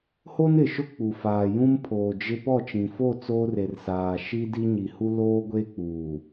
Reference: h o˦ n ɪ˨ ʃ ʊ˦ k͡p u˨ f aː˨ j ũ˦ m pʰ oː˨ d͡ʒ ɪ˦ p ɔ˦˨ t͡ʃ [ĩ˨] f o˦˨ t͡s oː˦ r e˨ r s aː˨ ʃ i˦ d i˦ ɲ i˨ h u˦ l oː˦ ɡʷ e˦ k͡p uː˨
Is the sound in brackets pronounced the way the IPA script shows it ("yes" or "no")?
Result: yes